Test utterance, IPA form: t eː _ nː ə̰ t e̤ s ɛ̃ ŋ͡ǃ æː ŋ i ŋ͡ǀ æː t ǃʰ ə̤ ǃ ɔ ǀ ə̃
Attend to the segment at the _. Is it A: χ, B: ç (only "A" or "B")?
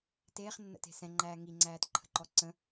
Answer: A